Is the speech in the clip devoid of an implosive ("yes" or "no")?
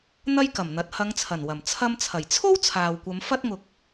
yes